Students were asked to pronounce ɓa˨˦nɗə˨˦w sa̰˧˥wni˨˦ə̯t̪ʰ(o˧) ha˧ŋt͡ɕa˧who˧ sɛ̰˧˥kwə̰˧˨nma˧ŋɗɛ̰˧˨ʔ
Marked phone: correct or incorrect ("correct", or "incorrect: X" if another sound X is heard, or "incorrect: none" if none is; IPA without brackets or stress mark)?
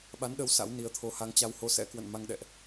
correct